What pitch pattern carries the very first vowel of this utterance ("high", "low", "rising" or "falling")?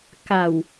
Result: low